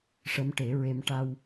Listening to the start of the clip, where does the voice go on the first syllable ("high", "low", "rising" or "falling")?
rising